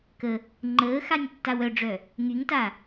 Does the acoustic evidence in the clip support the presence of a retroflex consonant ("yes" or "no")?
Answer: yes